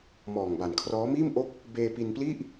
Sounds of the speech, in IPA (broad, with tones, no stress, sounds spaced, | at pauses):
m ɔː˨˩ ŋ b a˨˩ n kʰ r ɔː˦˥ m iː˥˩ m ʔ o˥˩ k̚ | b eː˧ p i˧ n p l i˥˩ ʔ